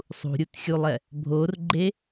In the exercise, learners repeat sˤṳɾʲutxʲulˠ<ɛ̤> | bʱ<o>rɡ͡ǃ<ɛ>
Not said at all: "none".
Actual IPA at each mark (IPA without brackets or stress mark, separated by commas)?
ɛ, o, e